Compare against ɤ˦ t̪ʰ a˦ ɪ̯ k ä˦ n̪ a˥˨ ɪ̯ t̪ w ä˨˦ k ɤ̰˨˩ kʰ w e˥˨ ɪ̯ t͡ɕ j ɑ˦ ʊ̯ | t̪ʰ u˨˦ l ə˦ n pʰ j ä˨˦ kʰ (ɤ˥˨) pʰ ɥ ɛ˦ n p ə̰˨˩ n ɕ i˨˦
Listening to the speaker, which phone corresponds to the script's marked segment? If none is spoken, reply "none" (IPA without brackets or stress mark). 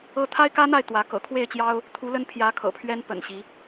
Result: ɤ̰˨˩